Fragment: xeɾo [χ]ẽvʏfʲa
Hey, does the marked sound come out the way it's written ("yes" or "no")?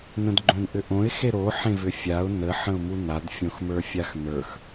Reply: no